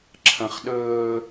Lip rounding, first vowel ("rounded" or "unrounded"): unrounded